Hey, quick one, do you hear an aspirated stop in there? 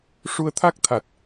yes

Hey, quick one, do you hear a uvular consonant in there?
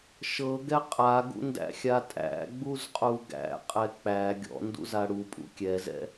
yes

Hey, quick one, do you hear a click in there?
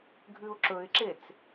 yes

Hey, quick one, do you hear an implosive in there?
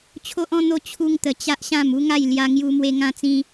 no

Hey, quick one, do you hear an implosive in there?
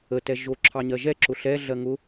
no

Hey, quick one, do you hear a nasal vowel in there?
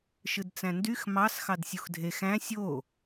yes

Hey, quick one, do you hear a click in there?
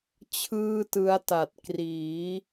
no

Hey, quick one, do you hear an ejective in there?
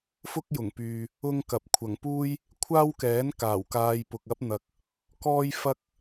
no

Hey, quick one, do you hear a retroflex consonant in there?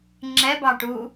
yes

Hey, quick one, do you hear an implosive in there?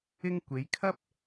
no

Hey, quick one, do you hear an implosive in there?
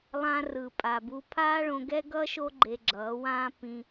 no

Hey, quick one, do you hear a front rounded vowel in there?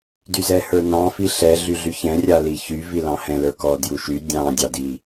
yes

